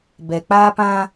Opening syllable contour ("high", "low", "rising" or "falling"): low